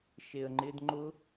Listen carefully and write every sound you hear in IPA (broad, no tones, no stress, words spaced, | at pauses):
ʃeə̯ŋ͡ǃɪd ŋ͡ǃʊ